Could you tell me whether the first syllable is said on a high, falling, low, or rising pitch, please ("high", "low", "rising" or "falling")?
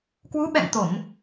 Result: rising